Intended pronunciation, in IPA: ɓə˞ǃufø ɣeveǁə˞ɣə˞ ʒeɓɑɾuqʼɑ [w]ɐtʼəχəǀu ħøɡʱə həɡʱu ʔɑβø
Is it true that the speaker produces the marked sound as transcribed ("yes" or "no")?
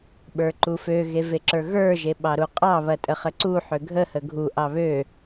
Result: no